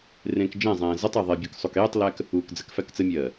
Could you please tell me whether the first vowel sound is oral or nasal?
nasal